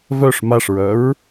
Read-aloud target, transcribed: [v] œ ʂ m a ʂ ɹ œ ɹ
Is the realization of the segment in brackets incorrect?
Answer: no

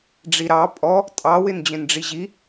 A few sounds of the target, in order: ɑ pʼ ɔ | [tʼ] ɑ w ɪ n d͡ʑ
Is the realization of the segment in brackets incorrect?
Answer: no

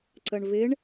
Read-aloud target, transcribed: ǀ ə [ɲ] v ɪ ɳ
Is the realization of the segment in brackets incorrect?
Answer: yes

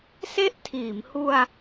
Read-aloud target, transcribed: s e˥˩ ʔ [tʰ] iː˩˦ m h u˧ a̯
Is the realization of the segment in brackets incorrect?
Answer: no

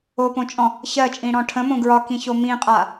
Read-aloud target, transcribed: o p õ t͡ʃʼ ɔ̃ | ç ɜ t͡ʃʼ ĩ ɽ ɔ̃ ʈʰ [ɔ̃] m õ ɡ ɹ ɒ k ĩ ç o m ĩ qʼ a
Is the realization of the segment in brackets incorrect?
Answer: yes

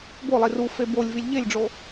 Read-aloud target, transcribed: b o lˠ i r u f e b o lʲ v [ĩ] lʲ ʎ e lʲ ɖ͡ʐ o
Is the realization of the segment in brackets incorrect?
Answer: yes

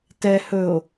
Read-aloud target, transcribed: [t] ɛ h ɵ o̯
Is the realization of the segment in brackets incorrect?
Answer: no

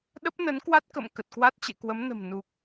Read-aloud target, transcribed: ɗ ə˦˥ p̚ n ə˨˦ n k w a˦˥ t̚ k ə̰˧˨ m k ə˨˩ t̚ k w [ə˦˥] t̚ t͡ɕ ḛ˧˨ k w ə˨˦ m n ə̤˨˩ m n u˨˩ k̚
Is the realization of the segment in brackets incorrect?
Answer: yes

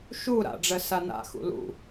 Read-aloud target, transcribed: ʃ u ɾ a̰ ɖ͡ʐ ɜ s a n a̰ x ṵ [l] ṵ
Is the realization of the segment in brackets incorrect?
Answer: no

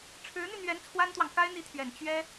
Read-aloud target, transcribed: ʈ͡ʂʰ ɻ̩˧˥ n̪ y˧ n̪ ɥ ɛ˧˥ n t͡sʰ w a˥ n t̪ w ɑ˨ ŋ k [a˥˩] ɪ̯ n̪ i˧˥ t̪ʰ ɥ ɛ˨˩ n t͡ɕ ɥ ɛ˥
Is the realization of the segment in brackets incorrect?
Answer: yes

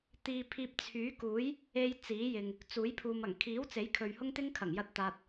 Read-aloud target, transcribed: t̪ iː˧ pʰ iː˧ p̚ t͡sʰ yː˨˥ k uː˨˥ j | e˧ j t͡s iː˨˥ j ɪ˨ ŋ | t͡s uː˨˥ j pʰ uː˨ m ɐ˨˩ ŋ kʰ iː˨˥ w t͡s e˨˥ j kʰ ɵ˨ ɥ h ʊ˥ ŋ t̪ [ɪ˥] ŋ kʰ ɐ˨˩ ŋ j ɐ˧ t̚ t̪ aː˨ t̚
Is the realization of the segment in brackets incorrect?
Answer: no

